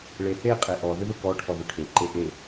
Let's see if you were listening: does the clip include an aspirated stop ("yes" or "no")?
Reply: yes